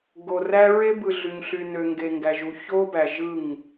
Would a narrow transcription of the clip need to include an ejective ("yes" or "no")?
no